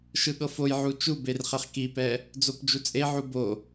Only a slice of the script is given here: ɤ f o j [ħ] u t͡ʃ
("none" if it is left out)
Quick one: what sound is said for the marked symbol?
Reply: ʕ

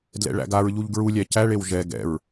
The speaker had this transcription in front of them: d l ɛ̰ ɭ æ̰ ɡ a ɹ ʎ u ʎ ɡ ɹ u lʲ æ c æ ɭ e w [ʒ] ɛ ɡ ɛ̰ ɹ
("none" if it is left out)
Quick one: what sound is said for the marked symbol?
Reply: ʒ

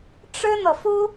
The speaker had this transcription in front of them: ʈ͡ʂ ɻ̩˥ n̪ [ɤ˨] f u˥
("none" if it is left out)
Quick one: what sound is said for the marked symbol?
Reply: ɤ˨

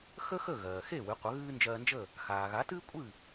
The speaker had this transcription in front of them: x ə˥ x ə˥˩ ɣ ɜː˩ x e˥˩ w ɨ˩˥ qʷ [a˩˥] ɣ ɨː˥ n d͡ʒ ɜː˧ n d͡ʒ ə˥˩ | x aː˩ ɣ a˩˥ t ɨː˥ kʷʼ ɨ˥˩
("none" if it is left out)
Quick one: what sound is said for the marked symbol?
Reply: ə˩˥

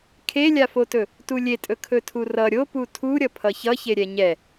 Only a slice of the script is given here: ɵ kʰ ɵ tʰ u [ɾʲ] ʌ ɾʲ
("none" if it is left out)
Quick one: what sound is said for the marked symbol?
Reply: r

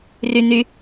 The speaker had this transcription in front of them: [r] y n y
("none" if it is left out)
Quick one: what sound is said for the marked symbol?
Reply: r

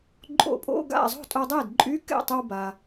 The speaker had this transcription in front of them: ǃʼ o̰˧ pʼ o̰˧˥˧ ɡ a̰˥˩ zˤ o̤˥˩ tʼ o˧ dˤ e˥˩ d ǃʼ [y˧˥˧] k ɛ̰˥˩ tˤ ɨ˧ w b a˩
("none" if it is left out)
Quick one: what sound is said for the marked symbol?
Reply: y˧˥˧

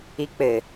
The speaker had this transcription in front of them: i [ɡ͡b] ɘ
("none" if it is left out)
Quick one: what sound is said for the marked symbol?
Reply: k͡p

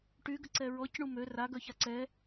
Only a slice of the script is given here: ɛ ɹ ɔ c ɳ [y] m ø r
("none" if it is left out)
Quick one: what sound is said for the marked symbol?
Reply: u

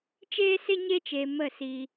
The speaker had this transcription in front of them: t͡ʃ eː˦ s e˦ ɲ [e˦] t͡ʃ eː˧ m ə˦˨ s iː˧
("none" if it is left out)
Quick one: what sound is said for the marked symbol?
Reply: e˦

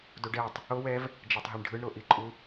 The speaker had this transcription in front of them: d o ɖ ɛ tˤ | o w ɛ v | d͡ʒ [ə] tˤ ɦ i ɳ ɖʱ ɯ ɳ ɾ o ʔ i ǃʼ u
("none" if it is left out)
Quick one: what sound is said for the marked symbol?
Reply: a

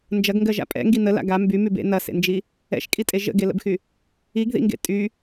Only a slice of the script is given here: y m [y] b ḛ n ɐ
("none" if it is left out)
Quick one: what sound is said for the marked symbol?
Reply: y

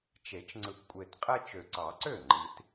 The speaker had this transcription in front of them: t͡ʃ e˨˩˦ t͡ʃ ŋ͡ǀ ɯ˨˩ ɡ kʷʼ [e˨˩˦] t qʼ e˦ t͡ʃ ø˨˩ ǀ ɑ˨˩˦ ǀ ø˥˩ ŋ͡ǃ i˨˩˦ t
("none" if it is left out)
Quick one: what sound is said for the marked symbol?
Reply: e˨˩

